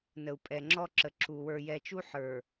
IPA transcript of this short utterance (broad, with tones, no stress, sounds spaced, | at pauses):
n ə˨ u̯ pʼ ɛ˨ ŋ͡ǁ ɔ˦ ǁ ə˨ ǁ u˨ w ə˞˨ j ɛ˨ t͡ʃ u˦ ħ ə˞˨